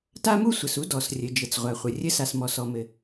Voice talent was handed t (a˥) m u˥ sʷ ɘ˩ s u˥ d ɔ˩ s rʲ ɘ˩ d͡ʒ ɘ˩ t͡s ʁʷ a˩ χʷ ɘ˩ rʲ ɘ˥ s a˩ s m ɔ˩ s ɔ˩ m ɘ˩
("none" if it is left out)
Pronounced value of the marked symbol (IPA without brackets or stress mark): a˥